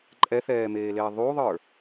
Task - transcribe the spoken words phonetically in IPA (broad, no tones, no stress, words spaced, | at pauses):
ǃʼɛθɛːmeːleː ðˤuðˤə˞